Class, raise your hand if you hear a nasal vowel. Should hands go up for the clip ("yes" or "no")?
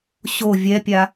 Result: no